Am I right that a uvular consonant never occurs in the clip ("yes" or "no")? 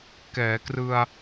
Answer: yes